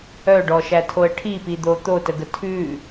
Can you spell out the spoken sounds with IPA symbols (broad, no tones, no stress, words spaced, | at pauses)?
œɖɔʃætʰoə̯ ʈʰipid̪o t̪otəɡə tʰʉ